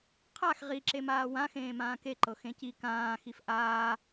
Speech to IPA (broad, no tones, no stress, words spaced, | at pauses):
qʰax ʁiǁemaː wãxẽː mãːkeǃɤ xẽci kãː xifʔaː